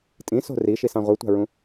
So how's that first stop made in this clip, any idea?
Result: ejective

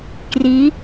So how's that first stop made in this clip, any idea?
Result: plain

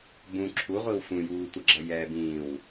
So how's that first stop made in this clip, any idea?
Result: plain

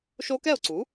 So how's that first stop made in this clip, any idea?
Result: plain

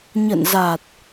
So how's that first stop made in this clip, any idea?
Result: plain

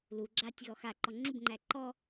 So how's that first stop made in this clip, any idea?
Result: click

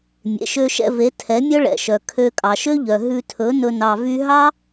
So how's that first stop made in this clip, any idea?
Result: aspirated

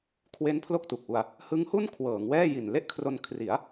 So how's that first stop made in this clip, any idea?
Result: aspirated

